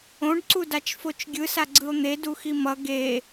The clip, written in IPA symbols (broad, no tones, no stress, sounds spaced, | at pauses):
õ ɖ ǀ u d a t͡ʃ f o t͡ʃ ɡʲ ɯ s a ɡ͡ǀ ɯ o̯ n̪ e d u x i m ʌ ɡ e